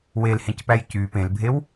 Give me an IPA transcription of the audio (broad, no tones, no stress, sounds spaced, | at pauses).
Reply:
w e l h ẽ c p æ j c y p ẽ l bʱ e w